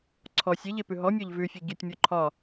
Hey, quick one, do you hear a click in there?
yes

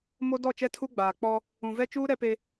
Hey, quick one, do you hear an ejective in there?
no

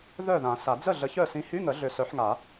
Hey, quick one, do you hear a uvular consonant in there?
no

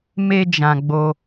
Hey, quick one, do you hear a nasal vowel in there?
yes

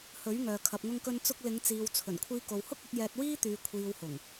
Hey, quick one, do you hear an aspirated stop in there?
yes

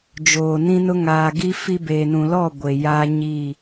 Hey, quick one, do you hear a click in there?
no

